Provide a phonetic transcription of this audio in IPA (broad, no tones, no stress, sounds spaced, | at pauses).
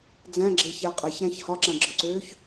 d͡z æ̃ ɡ͡ǁ e ç æ qʼ æ ç ɾ æ̃ ç h ɒ ǁ ã ɡ͡ǁ ɒ ǀ øː ç